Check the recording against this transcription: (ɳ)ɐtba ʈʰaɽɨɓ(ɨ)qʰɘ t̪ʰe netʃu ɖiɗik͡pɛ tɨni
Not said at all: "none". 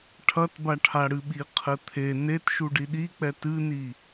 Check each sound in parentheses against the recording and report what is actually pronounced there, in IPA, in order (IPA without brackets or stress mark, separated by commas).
ʈʰ, i